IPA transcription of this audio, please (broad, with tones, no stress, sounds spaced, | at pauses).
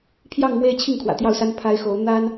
pʰ j ɑ˥˧ ŋ m w e˥˧ ɪ̯ t͡ɕʰ i˥˩ ŋ kʰ w ä̰˨˩ t̪ j ɑ˥˩ ʊ̯ s a˥ n pʰ a˥ ɪ̯ x o˧˥ ʊ̯ n̪ a˥ n